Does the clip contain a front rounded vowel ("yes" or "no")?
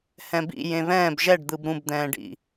no